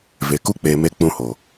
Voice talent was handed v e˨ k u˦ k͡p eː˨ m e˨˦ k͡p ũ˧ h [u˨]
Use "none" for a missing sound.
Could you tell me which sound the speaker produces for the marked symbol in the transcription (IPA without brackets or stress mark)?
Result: o˨